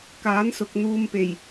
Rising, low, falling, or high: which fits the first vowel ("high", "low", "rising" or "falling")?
rising